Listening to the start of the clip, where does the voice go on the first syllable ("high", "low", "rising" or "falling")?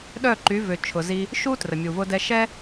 falling